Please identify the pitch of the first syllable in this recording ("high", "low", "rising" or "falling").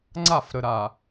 falling